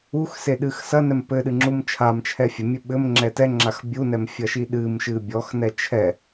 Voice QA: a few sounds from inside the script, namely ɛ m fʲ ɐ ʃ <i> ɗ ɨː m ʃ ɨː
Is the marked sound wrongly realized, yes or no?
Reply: no